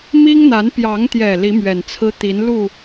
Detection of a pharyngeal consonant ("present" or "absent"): absent